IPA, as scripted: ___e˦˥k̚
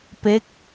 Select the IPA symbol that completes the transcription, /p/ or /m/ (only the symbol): p